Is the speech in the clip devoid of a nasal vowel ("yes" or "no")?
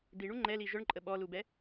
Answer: yes